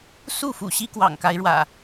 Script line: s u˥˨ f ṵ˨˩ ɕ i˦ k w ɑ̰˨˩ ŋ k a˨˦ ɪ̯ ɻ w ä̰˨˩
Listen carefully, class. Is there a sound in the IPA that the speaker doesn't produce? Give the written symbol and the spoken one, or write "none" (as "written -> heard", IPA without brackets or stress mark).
none